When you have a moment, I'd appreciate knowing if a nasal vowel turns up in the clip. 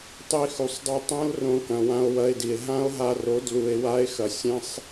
yes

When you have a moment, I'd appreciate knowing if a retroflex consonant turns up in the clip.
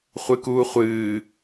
no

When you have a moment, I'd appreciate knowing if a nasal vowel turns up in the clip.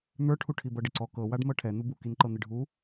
no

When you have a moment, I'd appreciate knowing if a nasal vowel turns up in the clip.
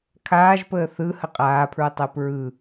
no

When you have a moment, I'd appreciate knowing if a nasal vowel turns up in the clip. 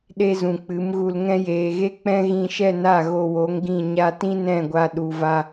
yes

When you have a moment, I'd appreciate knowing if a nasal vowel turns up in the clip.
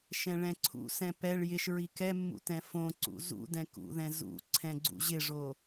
yes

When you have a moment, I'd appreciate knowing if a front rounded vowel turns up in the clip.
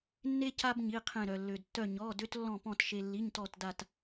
yes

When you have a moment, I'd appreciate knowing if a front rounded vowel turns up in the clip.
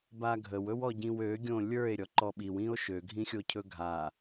yes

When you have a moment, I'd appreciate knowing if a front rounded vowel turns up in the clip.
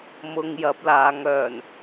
yes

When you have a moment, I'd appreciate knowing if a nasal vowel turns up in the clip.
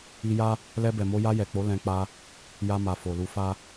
yes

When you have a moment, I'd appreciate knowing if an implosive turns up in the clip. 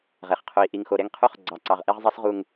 no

